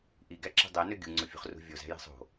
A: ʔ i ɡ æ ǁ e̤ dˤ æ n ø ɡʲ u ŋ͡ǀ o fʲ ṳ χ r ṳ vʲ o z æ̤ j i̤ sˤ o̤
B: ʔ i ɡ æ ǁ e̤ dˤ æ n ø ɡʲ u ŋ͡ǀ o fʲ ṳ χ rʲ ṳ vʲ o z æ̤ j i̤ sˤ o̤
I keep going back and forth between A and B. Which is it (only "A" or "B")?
A